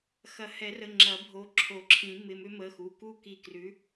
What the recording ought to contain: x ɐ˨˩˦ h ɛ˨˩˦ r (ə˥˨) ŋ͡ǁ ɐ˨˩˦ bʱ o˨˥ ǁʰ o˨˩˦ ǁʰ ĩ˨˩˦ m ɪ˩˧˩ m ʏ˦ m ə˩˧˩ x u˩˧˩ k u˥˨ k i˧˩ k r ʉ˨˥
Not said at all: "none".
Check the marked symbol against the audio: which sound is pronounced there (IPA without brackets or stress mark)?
ə˩˧˩